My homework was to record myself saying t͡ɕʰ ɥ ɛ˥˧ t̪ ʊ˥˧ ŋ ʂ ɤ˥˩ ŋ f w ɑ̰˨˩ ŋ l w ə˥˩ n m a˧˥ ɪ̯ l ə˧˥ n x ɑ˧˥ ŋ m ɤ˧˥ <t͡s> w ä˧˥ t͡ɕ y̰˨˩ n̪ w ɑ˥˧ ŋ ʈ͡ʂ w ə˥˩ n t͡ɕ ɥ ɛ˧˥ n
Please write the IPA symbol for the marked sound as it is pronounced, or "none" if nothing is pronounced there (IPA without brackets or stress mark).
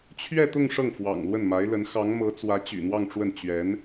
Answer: t͡s